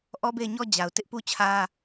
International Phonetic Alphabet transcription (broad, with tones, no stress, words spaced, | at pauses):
ʔɔ˦be˦˨ɪ̯ɲɔ˦ d͡ʑa˨ʊ̯ tɪ˦ʔpu˦t͡ɕʰä˦